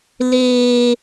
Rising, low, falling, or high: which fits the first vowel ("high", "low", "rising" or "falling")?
high